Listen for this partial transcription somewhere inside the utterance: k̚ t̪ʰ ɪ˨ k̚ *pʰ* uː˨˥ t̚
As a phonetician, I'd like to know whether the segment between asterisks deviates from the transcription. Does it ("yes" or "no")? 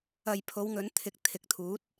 yes